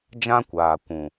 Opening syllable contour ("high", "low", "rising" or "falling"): high